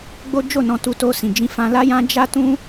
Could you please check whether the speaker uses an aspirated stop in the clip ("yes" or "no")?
no